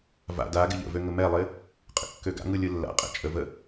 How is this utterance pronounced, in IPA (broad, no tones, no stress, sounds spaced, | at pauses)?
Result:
v a̰ d a ɡ ɪ ʎ ə̰ v ø ŋ ə m ɛ lˠ ɪ | qʼ ə̰ kː ø ɡ a̰ ŋ ɯ lʲ ɯ lː a̰ qʼ ɛ̰ t͡ʃʼ ə v ə